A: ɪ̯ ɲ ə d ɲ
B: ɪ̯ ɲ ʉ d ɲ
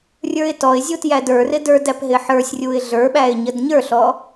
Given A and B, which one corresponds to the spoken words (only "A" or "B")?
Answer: A